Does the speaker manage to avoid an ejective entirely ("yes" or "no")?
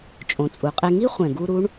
no